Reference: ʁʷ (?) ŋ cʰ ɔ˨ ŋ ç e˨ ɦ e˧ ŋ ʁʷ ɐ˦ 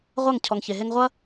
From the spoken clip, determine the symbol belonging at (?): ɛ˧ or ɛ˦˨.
ɛ˦˨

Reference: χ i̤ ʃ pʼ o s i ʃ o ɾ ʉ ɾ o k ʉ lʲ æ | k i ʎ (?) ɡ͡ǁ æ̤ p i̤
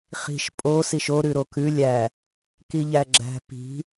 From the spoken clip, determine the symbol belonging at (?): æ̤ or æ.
æ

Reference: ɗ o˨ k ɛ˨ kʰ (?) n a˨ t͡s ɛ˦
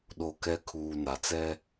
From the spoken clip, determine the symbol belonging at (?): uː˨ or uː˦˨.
uː˨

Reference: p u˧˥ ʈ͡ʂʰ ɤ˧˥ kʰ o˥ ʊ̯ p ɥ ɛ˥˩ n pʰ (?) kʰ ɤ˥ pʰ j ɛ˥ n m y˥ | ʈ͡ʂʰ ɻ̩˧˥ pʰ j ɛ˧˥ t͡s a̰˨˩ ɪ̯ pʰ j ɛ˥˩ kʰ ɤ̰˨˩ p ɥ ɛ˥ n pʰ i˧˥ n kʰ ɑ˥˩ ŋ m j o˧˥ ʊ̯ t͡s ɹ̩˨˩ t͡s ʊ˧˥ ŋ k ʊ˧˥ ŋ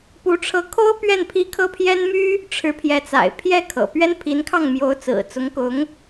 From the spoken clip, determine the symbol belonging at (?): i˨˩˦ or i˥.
i˥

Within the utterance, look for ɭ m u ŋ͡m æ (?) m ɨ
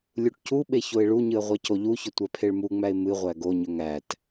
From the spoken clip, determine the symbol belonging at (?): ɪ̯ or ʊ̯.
ɪ̯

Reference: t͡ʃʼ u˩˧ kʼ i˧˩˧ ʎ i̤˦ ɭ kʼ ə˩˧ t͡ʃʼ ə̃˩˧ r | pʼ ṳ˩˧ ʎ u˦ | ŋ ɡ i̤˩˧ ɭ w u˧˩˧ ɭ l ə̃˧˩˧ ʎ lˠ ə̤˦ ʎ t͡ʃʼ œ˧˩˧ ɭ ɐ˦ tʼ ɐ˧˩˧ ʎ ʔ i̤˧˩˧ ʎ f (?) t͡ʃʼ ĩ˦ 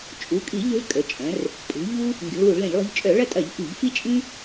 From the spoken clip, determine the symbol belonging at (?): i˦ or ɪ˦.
i˦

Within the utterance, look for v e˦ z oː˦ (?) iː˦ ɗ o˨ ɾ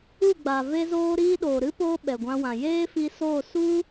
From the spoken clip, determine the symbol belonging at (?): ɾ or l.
ɾ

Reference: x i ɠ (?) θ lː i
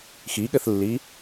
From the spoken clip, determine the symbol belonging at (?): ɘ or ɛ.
ɘ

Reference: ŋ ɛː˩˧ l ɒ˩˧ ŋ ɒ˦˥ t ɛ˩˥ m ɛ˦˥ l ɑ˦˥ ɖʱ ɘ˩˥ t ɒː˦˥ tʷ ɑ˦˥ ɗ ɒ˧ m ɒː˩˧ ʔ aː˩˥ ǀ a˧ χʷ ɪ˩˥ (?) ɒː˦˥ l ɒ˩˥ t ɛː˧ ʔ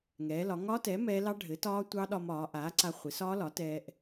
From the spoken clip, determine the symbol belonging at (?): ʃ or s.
s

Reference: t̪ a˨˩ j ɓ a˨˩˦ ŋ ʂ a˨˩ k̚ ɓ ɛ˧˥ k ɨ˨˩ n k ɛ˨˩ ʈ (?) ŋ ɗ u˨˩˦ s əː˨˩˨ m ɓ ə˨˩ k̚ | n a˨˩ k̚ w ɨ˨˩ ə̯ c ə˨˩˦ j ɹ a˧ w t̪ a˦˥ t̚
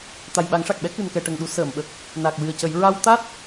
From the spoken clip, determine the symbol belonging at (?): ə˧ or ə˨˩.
ə˨˩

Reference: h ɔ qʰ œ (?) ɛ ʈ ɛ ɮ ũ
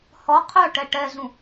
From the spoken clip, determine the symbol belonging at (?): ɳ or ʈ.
ʈ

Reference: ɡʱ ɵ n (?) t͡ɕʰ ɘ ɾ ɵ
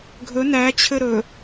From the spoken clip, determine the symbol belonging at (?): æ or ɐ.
æ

